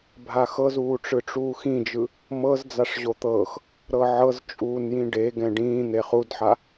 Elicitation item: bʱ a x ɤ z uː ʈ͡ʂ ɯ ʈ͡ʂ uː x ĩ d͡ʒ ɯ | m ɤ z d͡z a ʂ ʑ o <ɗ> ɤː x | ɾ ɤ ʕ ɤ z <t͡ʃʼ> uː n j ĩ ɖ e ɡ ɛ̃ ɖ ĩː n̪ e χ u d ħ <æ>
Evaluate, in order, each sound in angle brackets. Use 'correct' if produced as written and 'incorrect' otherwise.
incorrect, correct, incorrect

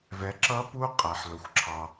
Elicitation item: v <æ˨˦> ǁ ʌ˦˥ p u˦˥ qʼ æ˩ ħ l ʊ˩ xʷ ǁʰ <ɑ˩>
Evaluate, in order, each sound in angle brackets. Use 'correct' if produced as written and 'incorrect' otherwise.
incorrect, correct

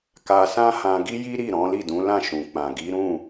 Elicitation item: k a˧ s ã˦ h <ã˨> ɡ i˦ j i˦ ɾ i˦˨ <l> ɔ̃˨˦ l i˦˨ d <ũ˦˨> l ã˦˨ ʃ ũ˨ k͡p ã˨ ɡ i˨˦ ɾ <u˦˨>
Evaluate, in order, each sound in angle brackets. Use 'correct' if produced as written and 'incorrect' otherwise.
incorrect, incorrect, incorrect, incorrect

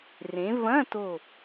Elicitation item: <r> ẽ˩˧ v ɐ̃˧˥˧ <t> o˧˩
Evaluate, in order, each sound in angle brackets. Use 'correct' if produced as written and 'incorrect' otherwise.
correct, correct

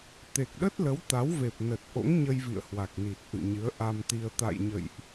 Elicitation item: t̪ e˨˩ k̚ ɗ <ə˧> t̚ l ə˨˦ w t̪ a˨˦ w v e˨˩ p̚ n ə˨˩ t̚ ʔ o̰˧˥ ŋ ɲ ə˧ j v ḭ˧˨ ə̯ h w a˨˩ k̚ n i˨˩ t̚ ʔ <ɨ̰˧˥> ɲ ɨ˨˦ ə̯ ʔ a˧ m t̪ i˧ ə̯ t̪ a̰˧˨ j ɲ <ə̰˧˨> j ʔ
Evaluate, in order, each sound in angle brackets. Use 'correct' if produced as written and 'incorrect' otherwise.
incorrect, incorrect, correct

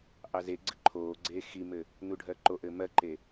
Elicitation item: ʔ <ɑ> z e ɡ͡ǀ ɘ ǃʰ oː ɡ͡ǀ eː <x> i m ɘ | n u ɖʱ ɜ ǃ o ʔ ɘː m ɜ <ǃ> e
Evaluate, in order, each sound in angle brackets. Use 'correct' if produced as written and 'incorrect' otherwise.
correct, correct, correct

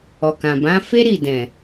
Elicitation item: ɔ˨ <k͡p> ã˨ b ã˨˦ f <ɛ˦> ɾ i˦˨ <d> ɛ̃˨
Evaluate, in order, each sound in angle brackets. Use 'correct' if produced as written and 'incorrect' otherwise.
incorrect, incorrect, correct

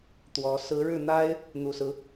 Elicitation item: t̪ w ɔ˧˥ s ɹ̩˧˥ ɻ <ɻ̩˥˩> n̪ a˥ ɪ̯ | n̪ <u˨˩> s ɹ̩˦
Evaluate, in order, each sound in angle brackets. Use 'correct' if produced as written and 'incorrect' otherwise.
correct, correct

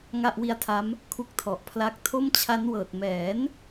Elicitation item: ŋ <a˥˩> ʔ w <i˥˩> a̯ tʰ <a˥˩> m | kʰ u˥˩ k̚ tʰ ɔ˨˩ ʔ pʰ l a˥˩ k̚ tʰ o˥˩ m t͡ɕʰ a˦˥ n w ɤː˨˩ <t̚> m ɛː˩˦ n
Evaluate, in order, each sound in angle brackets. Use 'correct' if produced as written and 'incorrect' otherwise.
correct, incorrect, incorrect, correct

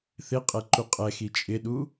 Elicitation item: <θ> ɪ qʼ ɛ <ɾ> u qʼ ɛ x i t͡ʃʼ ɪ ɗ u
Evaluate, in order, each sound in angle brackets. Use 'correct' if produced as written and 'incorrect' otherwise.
correct, incorrect

